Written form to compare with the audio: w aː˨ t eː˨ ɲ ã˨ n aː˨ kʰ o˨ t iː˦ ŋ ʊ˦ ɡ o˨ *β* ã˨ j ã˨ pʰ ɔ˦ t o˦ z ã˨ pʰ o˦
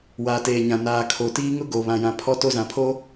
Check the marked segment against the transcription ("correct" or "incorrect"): correct